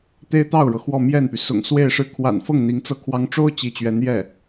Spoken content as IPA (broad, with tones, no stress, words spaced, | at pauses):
t̪e˥ɪ̯t̪ɑ˥˩ʊ̯ɻɤ˩ xwɔ˥˧mjɛ˥˩npy˩ sʊ̰˨˩ŋswe˥˧ɪ̯ʂɻ̩˥˩ kʰwa̰˨˩nfɤ˥˩ŋ n̪i˧˥ŋt͡sɤ˥˩kʰwɑ˥ŋ ʈ͡ʂo˥ʊ̯ t͡ɕi˧˥t͡ɕɥɛ˧˥n jɛ˥˩